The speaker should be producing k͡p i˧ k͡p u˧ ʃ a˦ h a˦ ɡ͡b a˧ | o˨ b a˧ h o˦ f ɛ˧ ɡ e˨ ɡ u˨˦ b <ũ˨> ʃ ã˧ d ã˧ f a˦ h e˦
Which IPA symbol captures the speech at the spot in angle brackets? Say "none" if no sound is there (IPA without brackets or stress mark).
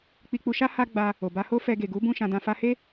ũ˦˨